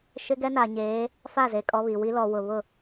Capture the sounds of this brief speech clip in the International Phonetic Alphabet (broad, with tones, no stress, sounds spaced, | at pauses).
ʃ ɪ˦ ɡ ɛ˦ n a˨ ɲ eː˨˦ | f a˦˨ z e˨ kʼ ɔ˦ β i˨ w i˦ l ɔ˨ w ʊ˨ β ʊ˦˨